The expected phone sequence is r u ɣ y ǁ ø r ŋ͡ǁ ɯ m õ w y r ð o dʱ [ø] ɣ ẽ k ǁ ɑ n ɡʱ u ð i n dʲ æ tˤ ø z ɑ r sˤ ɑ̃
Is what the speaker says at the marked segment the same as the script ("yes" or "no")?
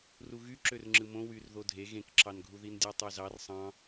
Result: no